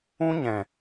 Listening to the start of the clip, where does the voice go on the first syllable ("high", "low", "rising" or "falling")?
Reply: high